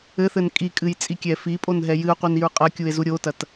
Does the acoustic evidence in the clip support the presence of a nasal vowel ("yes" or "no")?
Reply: no